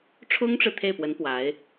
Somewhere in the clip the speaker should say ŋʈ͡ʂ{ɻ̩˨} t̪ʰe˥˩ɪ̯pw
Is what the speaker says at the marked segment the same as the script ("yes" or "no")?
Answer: yes